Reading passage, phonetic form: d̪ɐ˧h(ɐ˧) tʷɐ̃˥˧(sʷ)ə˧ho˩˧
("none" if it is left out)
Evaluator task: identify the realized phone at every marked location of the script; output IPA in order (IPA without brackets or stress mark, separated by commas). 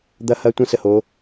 ɐ˧, s